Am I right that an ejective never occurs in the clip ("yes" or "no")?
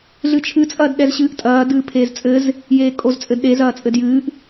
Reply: no